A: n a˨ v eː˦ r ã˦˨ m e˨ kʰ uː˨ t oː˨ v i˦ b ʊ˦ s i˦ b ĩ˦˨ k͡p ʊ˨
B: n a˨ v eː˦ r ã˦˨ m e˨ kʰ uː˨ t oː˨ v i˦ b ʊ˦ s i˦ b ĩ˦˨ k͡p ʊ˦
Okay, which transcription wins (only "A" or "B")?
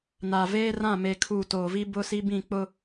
B